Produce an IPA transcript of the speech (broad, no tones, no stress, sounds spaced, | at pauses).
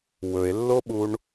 w ɵ e̯ lː o ɓ u ɳ